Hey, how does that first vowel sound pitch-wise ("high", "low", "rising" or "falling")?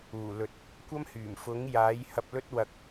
low